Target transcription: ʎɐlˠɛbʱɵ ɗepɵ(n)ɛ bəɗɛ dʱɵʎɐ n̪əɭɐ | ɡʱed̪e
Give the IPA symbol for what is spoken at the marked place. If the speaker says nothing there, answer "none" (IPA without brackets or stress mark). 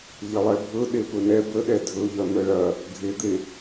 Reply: n